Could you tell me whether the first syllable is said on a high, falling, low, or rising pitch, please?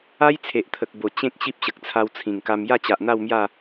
high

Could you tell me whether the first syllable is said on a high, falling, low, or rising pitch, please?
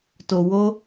low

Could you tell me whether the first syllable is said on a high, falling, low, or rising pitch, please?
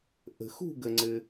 low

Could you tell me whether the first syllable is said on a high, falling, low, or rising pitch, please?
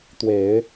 low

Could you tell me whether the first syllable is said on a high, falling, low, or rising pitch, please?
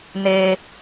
low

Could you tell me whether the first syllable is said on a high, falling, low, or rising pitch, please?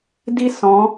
high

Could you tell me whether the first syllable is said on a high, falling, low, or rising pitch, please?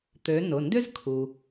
rising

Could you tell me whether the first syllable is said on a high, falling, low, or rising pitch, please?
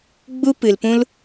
high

